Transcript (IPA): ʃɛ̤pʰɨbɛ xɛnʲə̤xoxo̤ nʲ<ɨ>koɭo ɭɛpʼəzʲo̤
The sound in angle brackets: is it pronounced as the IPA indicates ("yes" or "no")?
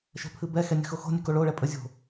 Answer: yes